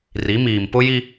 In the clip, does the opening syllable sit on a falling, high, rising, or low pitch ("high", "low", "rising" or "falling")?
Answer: rising